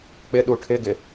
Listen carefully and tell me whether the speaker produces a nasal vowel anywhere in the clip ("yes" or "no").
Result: no